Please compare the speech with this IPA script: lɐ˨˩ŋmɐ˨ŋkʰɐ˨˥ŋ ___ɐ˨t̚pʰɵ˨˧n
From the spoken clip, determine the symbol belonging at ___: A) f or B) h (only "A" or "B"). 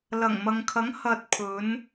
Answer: B